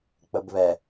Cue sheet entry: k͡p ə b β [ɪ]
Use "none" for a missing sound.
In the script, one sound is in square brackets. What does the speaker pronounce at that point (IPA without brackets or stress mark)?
ɛ